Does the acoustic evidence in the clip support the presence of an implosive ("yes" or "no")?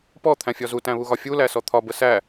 no